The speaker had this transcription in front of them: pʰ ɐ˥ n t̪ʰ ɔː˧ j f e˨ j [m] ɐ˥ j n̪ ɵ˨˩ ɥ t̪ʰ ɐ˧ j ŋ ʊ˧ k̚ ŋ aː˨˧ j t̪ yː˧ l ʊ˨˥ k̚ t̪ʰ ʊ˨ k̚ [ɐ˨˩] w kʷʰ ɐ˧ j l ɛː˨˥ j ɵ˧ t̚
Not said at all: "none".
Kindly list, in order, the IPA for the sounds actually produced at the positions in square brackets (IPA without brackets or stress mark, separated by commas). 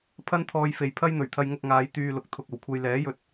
pʰ, ɐ˨˩